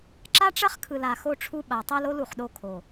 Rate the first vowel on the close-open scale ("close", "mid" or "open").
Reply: open